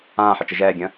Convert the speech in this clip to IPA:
ãː ħ ə t͡ʃ ə ʒ ɛː ɡʲ ə̃ː

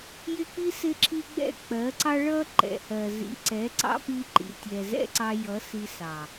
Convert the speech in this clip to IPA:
j ɪ˦ k͡p i˦ s ɪ˦ ǁʰ i˦ ɡ͡b ɛ̰˦˨ k͡p ɜ˨˦ ǀ ɑ˦ ɭ ʌ˦ ǃ ɛ̰˨ h ɜ˨ z ḭ˨ ǀ ɛ˨˦ ǀ ɑ̰˦ p i˦ ǃ ḭ˨ tʲ ɛ˨ z ɛ̰˦ ǀ ɑ˧ j ʌ˨˦ s i˧ s ɑ˨

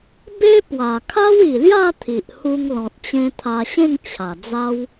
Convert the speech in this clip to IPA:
b e˦ p w a˨˩ kʰ a˦ w i˨˩ l j a˥˧ t̪ʰ i˨ ʔ h u˧ ŋ l ɔ̃˨ t̚ t͡ɕ ẽ˧ t̪ʰ a˧ ɕ ẽ˥˧ ŋ t͡ɕʰ a˨˩ d͡z a˦ w

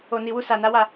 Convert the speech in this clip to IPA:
o˨ n i˨ w u˧ s a˨ n a˨˦ w a˦˨

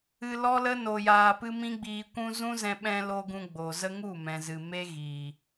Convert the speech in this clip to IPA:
ɨ˧ l ɔ˦ l ə˦ n o˧ j aː˧ p ɨ˦ m ĩ˦ ɡ͡b iː˧ kʷ ũ˦ z ũ˦ z ɛ̃˧ ɓ ɛ̃˧ l o˧ ɡ ũ˧ ɡ͡b o˨ z ə˦ ŋ u˦˨ m ɛ̃˨ z ɨ˨ m e˦ ɣ iː˨

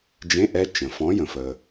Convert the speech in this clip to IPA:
d͡ʒ ẽ˧˥˧ ʔ ɛ˩˧˩ t͡ʃ ə̃˩ f ɔ̃˨˥ j ə̃˩ f ə˩

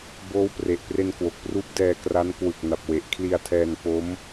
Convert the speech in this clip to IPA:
b oː˦˥ w p r e˨˩ ʔ p r e˧ n k w o˨˩ k̚ p r uː˦˥ p̚ d ɛː˧ k r a˦˥ n k w ɯ˨˩ k̚ n a˨˩ p̚ w e˨˩ ʔ kʰ l i˧ a̯ tʰ ɛː˧ n p o˦˥ m

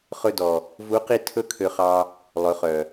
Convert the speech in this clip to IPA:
χ ɵ˧ d ɔ˨ | v u˨˦ q i˧ tʰ ɵ˦ kʰ ø˧ χ ɑ˧ | lˠ ɵ˨˦ χ œ˨

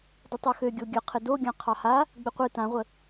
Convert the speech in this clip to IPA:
d ə tˤ ø x ø ɡʲ o ɡʲ ə qʰ ɪ d o ɡʲ ã qʰ ɑ h a | ɡ͡b ɪ qʷ ɨ t ã ʁʷ ə

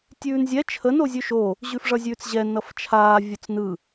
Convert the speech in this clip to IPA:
tʲ ʉː n zʲ ɛ t͡ʃʰ ə n o zʲ ʉ ʃ o | ʑ ʉ f ʐ ʌ zʲ ʉː t͡s ʑ ɛ n ʌ f t͡ʃʰ aː vʲ o t͡s n ɯ

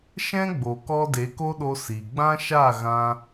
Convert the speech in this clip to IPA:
ʃ ɛ̃˦ ɡ͡b o˨ k ɔ˧ d e˨˦ k o˦ ɗ o˧ s i˨ ɡ͡b ã˦ ʃ a˦˨ ɣ ã˧

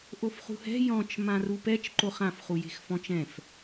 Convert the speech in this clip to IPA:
ʔ o f χ ṳ h ɛ̤ j ɔ̃ t͡ʃ m ã r u p ɛ t͡ʃ ǃ o χ ã f χ u j e̤ x f ɔ̃ t͡ʃ ɛ̃ f

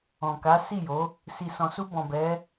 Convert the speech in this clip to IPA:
ɔ̃˨ k a˨˦ s i˦˨ j o˨˦ | s i˨ s ɔ̃˨ s u˧ b ɔ̃˨ b ɛ˨˦

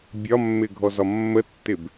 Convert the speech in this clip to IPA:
bʲ ɒ mː ɪ ɡʱ ɔ z ɒ mː ə tː ɪ b

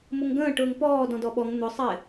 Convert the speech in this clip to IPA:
m ʊ ŋ ɡ ə̃ː ʈ ʊː ŋ p ɔː d ɔ̃ d ɔ ɓ ɔ ŋ n̪ ʊ sˤ ɪ

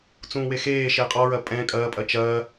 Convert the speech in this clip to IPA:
t͡s ũː w e x eː ʃ e qʼ ɔ ɹ ɐ pʼ ɛ̃ kʼ ɐː pʼ ɐ t͡ʃ ɐː

